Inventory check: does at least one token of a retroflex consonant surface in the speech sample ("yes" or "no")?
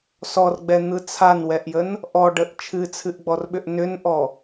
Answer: yes